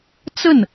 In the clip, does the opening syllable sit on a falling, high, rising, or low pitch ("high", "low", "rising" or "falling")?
falling